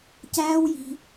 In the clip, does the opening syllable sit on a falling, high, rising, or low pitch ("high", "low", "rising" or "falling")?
high